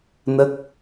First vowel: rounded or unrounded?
unrounded